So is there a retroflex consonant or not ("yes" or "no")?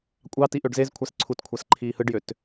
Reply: yes